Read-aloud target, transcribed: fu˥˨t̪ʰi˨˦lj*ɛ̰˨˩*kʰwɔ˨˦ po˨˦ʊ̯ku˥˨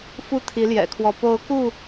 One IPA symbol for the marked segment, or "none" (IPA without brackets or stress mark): ɛ̰˨˩